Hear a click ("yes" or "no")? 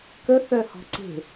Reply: yes